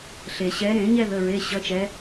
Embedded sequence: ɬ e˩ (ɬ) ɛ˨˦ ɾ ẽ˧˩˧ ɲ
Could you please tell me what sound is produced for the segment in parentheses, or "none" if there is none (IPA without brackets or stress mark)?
ɕ